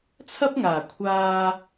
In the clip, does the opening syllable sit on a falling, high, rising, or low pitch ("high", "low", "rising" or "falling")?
high